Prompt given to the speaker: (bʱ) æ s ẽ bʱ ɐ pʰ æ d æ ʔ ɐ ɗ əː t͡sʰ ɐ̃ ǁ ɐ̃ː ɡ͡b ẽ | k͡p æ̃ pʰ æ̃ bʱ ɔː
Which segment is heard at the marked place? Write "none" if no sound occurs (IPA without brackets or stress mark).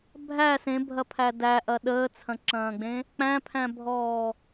bʱ